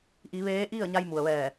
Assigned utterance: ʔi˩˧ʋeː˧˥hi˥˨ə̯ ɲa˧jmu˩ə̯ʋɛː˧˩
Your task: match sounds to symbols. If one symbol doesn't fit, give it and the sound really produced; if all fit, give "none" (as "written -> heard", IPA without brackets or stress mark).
h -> ʔ